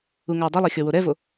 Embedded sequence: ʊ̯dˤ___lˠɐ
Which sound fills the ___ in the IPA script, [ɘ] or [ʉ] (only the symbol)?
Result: ɘ